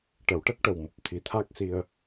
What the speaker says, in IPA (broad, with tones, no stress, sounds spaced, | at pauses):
ʈ ə˨˩˨ w ʈ ə˦˥ k̚ ʈ ə˨˩ w m u˨˩ p̚ t̪ʰ i˨˩˦ t̪ʰ a˦˥ k̚ s i˧ ə̯